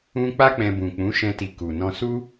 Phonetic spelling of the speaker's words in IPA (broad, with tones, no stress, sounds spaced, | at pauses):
ũ˦ k͡p a˦ k͡p ɛ̃˧ b ũ˨ k͡p ũ˨˦ ʃ ɛ̃˧ t i˨ k u˨ n ɔ̃˧ s u˦